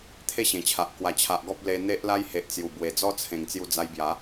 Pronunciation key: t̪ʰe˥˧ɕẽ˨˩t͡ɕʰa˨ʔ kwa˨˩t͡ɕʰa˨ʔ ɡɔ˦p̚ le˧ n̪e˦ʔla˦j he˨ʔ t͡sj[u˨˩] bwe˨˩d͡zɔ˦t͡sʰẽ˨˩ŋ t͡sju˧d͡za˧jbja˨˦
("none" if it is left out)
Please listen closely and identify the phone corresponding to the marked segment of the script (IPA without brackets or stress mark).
u˨˩